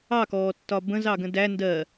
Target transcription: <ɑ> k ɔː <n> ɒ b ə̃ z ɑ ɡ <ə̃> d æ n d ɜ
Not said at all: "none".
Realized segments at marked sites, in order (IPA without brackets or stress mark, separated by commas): ɑ, tː, ə̃